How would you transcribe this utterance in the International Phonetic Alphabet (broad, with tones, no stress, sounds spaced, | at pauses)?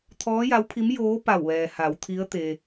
t̪ʰ ɔː˧˥ j a˧˥ w pʰ i˧˥ m j oː˧˥ p a˧˩ w ʋ ɛː˩ h a˩˧ w t̪ʰ i˧˥ ə̯ t̪ e˧